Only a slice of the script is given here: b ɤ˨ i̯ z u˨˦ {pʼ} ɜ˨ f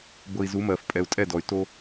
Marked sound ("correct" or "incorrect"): incorrect